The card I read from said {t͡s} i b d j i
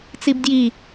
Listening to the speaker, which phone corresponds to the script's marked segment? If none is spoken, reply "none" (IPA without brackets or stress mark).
t͡s